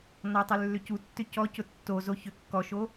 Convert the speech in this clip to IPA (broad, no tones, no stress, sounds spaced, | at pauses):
n ɔ tˤ ʏ lː ʏ c u tː ʏ c ɔ c ʊ tː o z o ç ʏ kː ɔ ʃ o